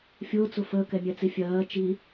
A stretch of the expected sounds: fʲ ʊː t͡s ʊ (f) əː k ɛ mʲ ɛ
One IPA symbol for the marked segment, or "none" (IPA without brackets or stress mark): f